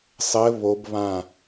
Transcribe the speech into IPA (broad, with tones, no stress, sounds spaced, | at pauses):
sˤ ɘ˦˥ β o˦˥ b β ã˥˧